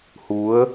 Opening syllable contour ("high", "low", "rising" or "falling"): rising